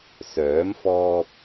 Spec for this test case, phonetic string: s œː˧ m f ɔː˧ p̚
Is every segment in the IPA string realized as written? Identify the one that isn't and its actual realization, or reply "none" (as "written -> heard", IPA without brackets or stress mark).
œː˧ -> œː˨˥